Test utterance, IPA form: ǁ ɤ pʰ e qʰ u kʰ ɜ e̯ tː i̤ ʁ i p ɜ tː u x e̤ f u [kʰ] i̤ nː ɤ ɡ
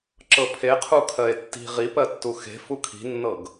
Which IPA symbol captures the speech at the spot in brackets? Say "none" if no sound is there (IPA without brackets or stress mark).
kʰ